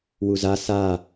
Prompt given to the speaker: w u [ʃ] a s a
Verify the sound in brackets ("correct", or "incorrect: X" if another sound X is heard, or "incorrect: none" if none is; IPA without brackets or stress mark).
incorrect: z